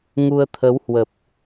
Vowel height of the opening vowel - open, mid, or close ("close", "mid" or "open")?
close